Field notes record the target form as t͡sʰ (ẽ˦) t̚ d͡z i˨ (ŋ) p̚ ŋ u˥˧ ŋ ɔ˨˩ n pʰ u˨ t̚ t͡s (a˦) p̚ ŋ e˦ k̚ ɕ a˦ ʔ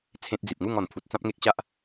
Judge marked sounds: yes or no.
yes, no, no

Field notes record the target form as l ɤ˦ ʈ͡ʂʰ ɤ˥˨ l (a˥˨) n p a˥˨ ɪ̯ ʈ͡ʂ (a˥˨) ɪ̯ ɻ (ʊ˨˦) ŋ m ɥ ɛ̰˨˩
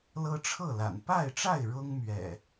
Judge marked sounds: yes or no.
no, yes, no

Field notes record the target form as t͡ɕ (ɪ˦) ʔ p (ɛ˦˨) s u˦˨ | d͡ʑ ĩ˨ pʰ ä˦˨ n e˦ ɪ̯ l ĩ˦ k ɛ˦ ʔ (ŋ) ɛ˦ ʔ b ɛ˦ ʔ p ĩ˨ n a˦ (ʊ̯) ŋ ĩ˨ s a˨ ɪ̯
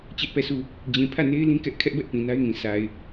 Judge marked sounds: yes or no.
no, yes, no, no

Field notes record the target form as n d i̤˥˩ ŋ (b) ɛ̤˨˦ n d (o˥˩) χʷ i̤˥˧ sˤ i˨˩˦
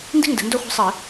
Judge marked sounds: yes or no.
no, yes

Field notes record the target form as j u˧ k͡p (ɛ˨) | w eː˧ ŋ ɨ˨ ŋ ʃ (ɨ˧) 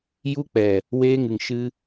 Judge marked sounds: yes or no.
yes, yes

